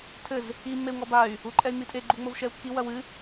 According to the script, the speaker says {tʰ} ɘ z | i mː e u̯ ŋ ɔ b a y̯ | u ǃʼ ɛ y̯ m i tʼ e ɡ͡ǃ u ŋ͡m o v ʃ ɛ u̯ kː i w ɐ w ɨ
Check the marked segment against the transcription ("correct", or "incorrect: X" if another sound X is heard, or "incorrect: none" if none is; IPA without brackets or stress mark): correct